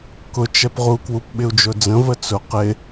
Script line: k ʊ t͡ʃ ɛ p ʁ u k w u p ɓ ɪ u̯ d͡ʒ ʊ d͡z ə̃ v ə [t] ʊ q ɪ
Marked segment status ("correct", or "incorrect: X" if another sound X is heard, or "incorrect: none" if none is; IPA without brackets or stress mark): incorrect: t͡s